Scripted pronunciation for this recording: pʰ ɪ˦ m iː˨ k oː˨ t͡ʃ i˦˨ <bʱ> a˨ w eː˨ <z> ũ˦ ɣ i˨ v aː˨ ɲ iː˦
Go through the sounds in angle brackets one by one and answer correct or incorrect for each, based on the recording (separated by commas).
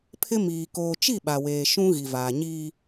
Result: incorrect, incorrect